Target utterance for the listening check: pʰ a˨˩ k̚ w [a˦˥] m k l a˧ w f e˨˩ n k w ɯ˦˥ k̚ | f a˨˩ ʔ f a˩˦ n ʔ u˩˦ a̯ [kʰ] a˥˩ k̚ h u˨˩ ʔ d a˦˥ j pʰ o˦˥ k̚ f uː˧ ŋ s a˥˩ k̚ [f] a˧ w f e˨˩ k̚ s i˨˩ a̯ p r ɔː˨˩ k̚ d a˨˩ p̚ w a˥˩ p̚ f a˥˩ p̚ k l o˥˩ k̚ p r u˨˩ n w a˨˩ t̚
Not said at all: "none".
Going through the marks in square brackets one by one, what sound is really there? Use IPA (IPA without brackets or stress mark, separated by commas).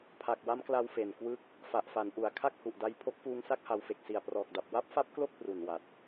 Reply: a˦˥, kʰ, h